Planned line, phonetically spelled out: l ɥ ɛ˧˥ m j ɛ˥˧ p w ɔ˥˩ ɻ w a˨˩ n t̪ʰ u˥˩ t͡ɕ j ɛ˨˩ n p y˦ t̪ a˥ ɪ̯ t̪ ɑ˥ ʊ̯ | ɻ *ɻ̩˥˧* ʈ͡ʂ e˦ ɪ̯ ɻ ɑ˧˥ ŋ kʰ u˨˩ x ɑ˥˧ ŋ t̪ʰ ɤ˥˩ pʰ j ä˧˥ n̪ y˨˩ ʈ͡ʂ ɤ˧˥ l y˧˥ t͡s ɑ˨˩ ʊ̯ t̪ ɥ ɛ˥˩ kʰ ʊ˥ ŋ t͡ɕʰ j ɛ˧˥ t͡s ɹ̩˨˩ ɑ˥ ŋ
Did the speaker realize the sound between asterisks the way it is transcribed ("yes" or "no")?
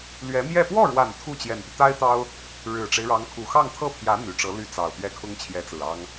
no